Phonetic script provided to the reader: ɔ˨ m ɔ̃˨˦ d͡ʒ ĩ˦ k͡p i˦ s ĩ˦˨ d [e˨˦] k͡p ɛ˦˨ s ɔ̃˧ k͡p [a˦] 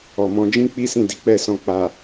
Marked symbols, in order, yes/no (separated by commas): no, no